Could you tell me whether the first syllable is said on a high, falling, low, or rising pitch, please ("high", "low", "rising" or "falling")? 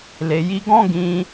low